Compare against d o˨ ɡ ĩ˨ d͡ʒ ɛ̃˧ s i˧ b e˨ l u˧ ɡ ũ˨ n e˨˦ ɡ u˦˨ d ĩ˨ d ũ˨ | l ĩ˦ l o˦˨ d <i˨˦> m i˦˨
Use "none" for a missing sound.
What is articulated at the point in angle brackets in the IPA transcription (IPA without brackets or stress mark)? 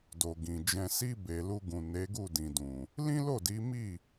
i˨˦